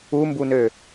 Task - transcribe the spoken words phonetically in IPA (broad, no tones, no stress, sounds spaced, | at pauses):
u m b u n ø